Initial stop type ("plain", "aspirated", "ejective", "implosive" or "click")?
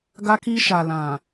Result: plain